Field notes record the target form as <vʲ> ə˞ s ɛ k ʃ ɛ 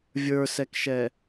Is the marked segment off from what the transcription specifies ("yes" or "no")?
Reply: no